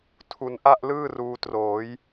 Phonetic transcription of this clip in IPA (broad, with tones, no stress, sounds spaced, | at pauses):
tʰ u˧ n ʔ a˥˩ ʔ l ɯː˥˩ r uː˧ t r oː˩˦ j